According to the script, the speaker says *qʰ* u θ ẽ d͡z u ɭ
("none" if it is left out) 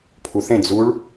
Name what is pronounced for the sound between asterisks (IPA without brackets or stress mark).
pʰ